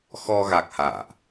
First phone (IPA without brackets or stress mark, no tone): x